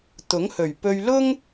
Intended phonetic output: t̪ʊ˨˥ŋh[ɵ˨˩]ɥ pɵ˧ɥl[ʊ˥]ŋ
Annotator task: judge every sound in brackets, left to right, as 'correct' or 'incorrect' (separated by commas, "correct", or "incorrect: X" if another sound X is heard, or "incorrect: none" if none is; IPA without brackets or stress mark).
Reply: correct, correct